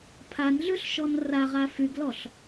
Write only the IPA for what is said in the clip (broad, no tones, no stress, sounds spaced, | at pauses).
pʰ a n ɮ ʉ ɬ ʃ ɔ n r a ʁ a f y ɡ l ɔ ɬ